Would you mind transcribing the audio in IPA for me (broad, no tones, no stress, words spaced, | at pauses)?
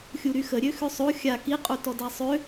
xʲuɾyxəɾʲø xøsˤo xʲa kiqʼu tɔdasˤø